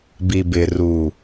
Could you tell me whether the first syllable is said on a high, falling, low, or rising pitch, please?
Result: low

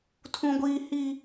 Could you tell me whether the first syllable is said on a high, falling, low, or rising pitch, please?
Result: high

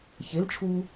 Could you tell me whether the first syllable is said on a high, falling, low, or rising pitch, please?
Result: rising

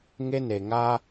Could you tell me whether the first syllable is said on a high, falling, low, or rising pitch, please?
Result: high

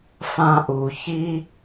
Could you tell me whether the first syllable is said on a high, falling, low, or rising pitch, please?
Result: high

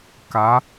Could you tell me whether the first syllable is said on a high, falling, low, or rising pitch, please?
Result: rising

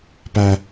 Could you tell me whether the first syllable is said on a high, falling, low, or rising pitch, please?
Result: high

